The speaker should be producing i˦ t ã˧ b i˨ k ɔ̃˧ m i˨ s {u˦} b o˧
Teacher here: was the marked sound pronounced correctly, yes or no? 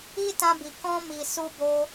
no